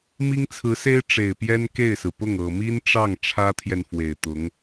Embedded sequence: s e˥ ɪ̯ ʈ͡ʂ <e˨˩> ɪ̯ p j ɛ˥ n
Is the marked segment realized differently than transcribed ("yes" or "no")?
no